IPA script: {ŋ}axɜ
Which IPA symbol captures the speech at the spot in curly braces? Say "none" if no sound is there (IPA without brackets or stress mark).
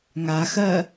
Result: ŋ